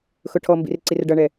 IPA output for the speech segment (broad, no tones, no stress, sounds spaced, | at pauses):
x ʊ ʈʰ ɔ m b ḭ r ǀ i r ɖ ʌ ɳ ɛ